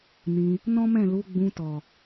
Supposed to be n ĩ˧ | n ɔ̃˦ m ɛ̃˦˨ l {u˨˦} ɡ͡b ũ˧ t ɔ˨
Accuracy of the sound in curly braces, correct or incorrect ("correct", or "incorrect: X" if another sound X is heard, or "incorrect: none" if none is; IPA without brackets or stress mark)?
correct